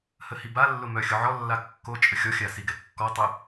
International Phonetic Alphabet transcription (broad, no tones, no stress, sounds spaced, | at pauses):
h ə h i b a lː ʊ m œ xʲ ʊ ʕ ɔ lː a kː o t͡ʃʼ ə xʲ ɔ xʲ a s i ɡ ɛ kː ɔ tˤ ʊ